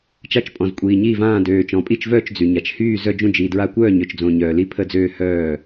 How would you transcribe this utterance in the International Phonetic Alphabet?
t͡ʃa˥˩t͡ʃpʼɔ̃˨˩z kʷʼiː˨˩ɲiː˥˩vãː˥˩ døː˨˩ t͡ʃɔ̃˨˩pʼi˥˩t͡ʃvœː˥˩t͡ʃ d͡zy˨˩ɲa˨˩t͡ʃ hyː˥˩ zœ˥˩d͡ʒũ˥˩d͡ʒiː˨˩ dɹa˥˩ kʷœː˥˩ɲø˨˩t͡ʃd͡zõ˨˩ ɲœː˨˩li˥˩pʰə˥˩d͡zøː˥˩ hœː˥˩

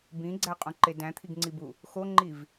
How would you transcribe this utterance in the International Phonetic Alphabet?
bĩɡ͡ǀæqʼũǃe dæ̃t̪ʰiɡŋ͡ǀibu | xoŋ͡ǃiv

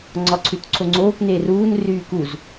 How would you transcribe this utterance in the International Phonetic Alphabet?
ŋ͡ǀɒǀʰʉtǀʰoŋ͡ǀoːk neruːn ryːkuz

